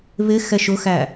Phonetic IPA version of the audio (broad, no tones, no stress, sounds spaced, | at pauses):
β ɪ x ɛ ʃ ʊ x æ